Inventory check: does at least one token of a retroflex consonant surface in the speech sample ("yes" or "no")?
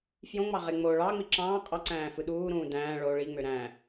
yes